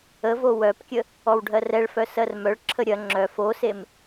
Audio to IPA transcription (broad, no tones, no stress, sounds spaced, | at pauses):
ə v o w œ p kʲ ə | ɔ w ɖʱ ɜ r ɛ ɭ f œ s ɜ r m œ ɭ ǁʰ ə ɾʲ ɐ ŋ͡ǁ œ f o s e m